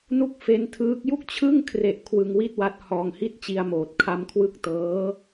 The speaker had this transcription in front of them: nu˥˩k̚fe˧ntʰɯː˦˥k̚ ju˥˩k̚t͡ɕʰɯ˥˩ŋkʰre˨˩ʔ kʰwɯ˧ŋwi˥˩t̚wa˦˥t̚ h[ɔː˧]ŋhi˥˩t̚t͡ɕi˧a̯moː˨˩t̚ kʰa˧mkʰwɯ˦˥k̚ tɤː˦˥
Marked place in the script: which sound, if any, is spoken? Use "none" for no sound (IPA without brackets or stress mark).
ɔː˧